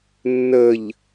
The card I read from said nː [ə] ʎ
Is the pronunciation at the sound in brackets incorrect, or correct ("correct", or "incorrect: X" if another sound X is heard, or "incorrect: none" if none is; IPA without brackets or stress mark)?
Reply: correct